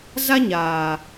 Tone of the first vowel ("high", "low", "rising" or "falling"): high